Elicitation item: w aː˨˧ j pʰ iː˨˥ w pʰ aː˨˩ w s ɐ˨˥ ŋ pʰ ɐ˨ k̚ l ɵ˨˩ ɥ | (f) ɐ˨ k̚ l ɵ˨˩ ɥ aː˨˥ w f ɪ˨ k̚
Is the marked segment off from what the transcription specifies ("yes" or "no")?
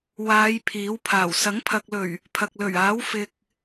yes